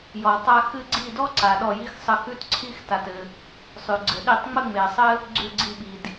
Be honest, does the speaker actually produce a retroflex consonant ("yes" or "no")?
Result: no